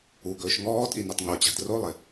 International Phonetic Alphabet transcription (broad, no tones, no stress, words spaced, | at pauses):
uɡɵːʃ ŋɔːtʼinitˤ ŋot͡ɕa̤d rolˠɪ